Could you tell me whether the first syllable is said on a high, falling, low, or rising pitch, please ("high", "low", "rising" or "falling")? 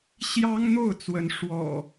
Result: high